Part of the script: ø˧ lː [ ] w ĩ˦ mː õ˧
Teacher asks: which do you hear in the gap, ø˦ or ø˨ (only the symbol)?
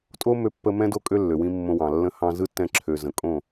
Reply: ø˨